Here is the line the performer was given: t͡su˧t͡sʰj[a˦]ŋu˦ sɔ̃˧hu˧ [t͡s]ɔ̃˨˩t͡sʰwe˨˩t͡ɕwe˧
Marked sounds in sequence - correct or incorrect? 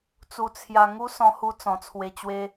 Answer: incorrect: a˧, correct

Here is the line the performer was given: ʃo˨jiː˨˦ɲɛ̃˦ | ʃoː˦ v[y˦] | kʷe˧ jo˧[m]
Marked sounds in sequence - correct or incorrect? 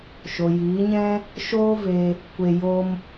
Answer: incorrect: e˦, correct

